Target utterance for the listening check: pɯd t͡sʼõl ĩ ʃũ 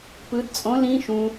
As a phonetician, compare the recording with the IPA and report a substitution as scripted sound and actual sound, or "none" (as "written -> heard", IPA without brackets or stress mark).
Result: none